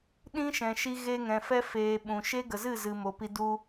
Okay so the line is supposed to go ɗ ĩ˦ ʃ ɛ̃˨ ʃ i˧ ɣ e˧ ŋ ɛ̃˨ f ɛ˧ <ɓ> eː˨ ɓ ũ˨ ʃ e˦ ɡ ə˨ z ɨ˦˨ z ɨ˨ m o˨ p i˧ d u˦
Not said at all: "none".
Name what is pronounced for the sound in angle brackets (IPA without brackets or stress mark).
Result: f